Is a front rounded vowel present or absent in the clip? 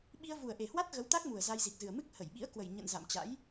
absent